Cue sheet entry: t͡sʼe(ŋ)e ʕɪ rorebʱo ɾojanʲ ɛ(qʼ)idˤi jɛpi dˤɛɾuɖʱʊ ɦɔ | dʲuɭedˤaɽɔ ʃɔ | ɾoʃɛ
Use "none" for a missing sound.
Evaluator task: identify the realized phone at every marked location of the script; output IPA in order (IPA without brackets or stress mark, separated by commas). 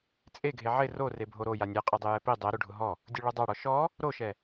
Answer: ɡʱ, qʼ